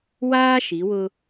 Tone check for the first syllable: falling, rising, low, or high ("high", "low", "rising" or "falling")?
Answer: high